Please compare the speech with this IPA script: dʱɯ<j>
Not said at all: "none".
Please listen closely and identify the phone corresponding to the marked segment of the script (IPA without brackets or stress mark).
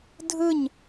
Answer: ɲ